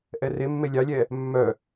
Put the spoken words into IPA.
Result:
ʔ ɛ r e mː e lʲ ɑ lʲ ɛ | mː œ

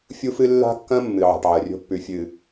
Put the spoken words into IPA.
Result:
fʲ u˦ f ɨ˦ lː a̤˦ kː ɐ̃˦ mː ɨ˨ ʕ a̤˨ ʈ ʕ ɐ˨ rʲ o̤˦ pː ʉ˨ fʲ ɨ˨

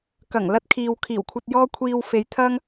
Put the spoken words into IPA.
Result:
k ɐ˨˩ ŋ l ɐ˧ t̚ kʰ iː˨ w kʰ iː˨˩ w kʷʰ ɐ˧ t̚ j ɔː˥ kʷʰ iː˧ w f e˨˧ j t̪ʰ ɐ˥ ŋ

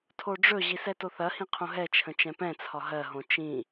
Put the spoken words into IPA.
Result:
tʰ o ɖ͡ʐ ɵ ʑ i s ɛ t o θ ɐ h ĩ qʰ õ ɦ ɛ t͡ʃʰ ə̃ t͡ʃ ɛ̃ p ɛ̃ t͡sʰ ɒ ɦ ɜ ɦ õ t͡ʃ ĩ

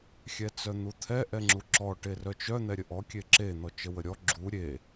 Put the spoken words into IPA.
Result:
xʲ ɛ t͡s œ n̪ u t̪ʰ ɛ ʔ ɛ ŋ͡ǁ u ǁ ɔ ʈ e r œ t͡ʃ œ n̪ ɛ ɾʲ ə ʔ ɔ kʲ e ǁ e n̪ ɔ t͡ʃ ə w ə ɾʲ ɔ ɡ͡ǁ u ɾʲ e

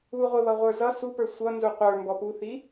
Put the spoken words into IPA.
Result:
u ʁʷ ɪ β ʌ ʁʷ ə˞ z ʌ s u p ə˞ sʷ ʌ n z u qʷ ə˞ m b ɔ p u θ i

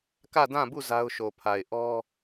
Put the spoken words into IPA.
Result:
k ä˦˨ d ã˦˨ b u˦˨ z a˦ ʊ̯ ʃ o˨ pʰ a˨ ɪ̯ ʔ ɔ˦

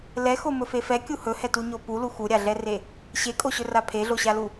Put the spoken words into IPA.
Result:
l ɛ x o m ɵ f e f ɛ kʲ u h ɵ h ɛ t u ɲ o p u l u x u ɾʲ a ɮ ɛ r e | ɕ e kʼ o ɕ ɵ r a pʰ e ɮ o ɕ a l u

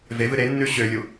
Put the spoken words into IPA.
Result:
v e v ɨ ɾ e nː ʉ ɕ ø lʲ u

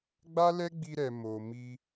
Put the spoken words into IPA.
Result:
ɡ͡b a˦ l ɛ˦ ɡ͡b i˧ ɾ ɛ˨ m o˨ m i˧

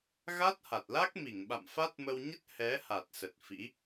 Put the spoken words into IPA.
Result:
ɣ a˦˥ t̚ h a˨˩ t̚ l a˦˥ k̚ m i˧˩ ŋ ɓ a̰˧˨ m f a˦˥ t̚ m ə˧ w ɲ ə˦˥ t̚ h ɛ˨˦ h a˨˩ t̚ s ə˨˩ t̚ f ḭ˧˥

